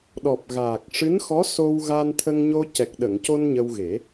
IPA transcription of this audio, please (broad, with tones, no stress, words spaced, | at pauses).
ɗɔ˨˩p̚ɣaː˨˩k̚ ʂɨ˧˥nxɔ˧˥ so˧w ɣa˧nt̪ʰə˧ŋɲo˧ cɛ˨˩k̚ɗə˨˩˨ŋco˧n ɲə˧wɣe˨˩˦